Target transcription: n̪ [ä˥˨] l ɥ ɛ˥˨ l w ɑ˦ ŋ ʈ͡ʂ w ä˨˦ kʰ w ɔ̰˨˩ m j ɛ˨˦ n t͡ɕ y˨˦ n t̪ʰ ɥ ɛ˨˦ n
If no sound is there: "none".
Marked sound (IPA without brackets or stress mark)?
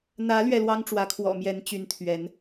ä˨˦